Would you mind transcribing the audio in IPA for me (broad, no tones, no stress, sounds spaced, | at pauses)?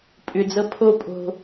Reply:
pʼ ʏ d͡z ɤ pʰ o pʼ o̤